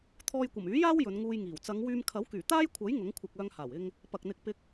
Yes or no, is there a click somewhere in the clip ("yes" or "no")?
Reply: no